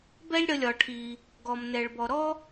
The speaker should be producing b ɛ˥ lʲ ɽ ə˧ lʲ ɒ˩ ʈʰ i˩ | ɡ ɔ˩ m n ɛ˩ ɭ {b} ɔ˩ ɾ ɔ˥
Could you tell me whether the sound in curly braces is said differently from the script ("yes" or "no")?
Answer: no